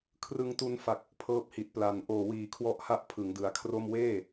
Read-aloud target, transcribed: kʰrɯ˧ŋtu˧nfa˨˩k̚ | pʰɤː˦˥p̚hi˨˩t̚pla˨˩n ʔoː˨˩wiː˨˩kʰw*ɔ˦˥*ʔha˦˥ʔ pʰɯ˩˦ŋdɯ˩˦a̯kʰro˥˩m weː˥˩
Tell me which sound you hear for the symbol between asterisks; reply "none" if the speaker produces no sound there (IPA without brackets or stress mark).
ɔ˦˥